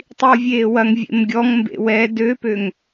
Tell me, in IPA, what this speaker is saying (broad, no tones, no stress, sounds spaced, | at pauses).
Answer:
tˤ i w vʲ eː w ɐ ŋ vʲ ḛ m ɡʲ ɔ ŋ m b ḛ w ɛ d ø p ø ŋ